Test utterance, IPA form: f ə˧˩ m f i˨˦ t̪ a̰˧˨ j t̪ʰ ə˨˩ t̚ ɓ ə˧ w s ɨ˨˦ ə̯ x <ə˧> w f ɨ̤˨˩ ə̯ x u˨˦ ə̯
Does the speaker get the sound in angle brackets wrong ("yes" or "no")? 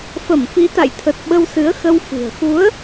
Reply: no